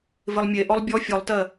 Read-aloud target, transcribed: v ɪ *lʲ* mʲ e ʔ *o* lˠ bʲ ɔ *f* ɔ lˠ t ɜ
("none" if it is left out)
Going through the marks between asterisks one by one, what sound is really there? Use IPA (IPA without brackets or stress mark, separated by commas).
lˠ, ɔ, fʲ